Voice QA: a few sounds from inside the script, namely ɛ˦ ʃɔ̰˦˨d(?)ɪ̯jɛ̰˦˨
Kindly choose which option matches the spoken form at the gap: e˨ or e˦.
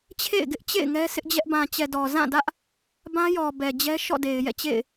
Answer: e˨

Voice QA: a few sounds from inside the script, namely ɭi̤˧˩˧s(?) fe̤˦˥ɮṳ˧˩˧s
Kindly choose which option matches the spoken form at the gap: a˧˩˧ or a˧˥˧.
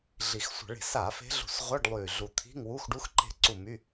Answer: a˧˩˧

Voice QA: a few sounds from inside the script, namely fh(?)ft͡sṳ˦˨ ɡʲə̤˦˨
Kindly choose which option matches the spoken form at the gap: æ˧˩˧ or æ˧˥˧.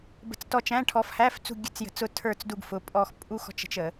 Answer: æ˧˥˧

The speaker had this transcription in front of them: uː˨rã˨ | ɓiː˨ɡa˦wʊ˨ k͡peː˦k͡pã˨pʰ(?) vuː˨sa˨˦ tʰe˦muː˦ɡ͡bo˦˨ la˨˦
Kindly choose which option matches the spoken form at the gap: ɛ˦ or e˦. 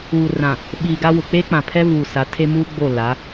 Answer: ɛ˦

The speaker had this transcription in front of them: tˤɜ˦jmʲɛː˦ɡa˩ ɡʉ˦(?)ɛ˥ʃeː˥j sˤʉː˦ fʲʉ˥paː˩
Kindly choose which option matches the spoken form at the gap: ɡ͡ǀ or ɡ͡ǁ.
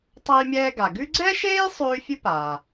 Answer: ɡ͡ǀ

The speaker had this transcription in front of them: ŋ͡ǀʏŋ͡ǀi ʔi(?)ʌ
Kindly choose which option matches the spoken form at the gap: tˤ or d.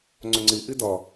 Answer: d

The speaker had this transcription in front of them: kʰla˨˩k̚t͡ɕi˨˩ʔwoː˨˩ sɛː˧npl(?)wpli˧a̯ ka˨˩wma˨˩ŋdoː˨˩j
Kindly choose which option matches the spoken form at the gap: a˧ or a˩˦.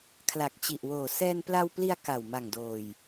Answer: a˧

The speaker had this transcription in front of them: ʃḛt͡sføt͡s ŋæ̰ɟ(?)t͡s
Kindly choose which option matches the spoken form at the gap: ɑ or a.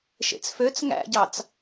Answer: ɑ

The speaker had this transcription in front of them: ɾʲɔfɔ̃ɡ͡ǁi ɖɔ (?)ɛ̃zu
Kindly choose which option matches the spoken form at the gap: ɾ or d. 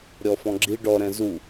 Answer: ɾ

